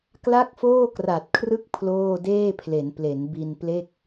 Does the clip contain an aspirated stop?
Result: yes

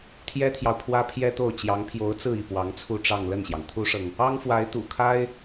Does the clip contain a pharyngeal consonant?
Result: no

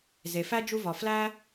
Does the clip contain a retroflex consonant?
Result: no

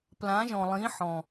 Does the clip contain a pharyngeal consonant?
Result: yes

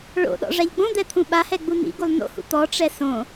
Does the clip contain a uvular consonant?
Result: no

